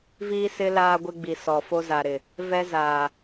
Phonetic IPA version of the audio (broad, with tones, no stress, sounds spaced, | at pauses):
v iː˦ s ɪ˦ l aː˦ ɡʷ ɪ˦ ɡ͡b i˨ s ɔ˨ f o˦ z a˨ ɾ ɪ˨ | v ɛ˦ z aː˨